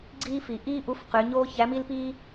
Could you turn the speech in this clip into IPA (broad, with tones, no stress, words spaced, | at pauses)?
ɡ͡ǀiː˥f i˩ʔiː˥ ʔu˧˥fqy˩˧ɲoː˥ çæ˧˥mi˥lpiː˥